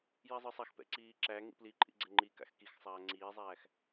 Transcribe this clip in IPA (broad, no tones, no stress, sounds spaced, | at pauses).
j i zˤ ə˞ sˤ a x p ɛ̰ ǀ iː ǁ æ ŋ ḭ p l i ǃʼ ḭ ɡ͡ǀ ɛ ŋ͡ǃ i k a̰ x k i x sˤ aː ŋ͡ǀ iː zˤ æː x